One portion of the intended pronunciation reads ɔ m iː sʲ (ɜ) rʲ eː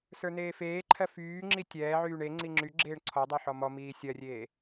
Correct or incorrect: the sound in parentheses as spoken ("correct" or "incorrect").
correct